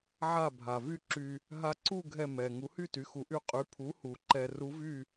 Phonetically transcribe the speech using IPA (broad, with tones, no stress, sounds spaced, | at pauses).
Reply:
ʕ a˧˩ bʱ a˩ v y˧ ǁ y˧ | ɦ a˧ ǀ u˥˨ ɡʱ ɛ˧˩ m ɛ˩ ŋ u˩˥ h y˥˨ t y˩˥ x u˩˥ ʔ y˧ qʼ y˩˥ pʰ u˩˥ h u˩ ǃ ɛ˧ r u˧˥ v y˥˨